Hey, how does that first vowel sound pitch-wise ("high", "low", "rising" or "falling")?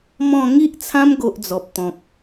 falling